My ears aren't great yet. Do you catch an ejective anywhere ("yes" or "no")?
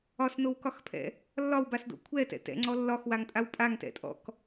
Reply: yes